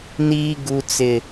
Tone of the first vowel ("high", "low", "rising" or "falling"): high